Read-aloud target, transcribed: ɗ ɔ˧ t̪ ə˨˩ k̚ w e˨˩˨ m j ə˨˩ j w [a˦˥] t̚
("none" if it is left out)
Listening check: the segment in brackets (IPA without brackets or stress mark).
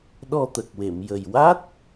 a˦˥